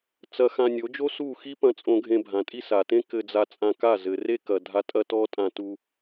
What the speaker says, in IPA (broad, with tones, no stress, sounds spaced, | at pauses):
t͡s ɐ˧ x ã˧ nʲ o˨˦ d͡ʒ o˦ s u˦˨ x i˦ p ɐ̃˧ t͡sʼ õ˧ ɡʱ ẽ˧ bʱ ã˨ tʼ i˦ s a˨ t ẽ˦ k ɘ˧ d͡z a˧ t͡sʼ ã˧ k a˦˨ z ɘ˨ r e˦ k ɐ˨ dʱ a˧ tʼ ɐ˦ t ɔ˦ tʼ ã˧ t u˧